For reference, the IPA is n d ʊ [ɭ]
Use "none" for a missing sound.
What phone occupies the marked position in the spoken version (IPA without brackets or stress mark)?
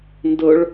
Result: ɭ